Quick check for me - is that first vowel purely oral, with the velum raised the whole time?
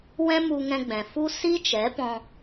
no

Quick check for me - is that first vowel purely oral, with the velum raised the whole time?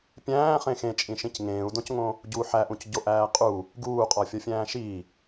no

